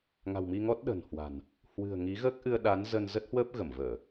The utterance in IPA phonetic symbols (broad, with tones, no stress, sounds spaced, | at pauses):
ŋ a̤˨˩ w m i˧ ŋ ɔ˦˥ t̚ ɗ ə̤˨˩ n h w a̤˨˩ n | h w ɨ̤˨˩ ə̯ ŋ i˨˦ ɣ əː˦˥ k̚ ʔ ɨ˧ ə̯ ɗ a˨˦ n z ə˧ n z ə˦˥ t̚ h w əː˦˥ p̚ ɣ ə˧˩ m v əː˧˩˨